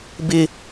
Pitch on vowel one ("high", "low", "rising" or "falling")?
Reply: high